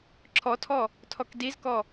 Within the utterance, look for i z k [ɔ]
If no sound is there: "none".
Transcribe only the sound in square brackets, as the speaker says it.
ɔ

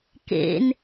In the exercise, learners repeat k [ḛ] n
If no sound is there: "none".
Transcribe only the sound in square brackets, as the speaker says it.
ḛ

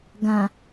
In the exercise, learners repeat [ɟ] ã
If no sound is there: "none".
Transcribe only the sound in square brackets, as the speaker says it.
ɡ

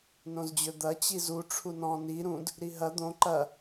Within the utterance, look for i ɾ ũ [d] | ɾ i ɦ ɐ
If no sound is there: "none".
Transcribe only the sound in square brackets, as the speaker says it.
d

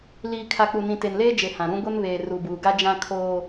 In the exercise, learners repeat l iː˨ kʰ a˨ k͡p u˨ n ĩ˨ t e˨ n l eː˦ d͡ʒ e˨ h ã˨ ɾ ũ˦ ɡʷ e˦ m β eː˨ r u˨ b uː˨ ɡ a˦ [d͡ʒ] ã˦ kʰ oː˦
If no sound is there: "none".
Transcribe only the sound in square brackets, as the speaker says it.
d͡ʒ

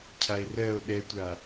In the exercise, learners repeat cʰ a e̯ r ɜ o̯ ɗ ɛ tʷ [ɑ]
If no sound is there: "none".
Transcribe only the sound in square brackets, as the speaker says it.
a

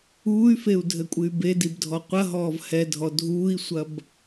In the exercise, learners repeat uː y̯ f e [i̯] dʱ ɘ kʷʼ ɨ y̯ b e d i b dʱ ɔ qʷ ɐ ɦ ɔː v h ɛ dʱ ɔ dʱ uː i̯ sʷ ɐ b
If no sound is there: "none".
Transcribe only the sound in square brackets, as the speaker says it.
u̯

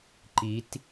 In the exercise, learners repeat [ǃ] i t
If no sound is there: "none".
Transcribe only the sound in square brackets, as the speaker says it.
ǃ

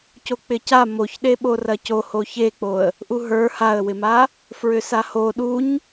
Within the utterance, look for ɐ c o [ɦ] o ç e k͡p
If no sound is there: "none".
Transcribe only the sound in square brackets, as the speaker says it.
h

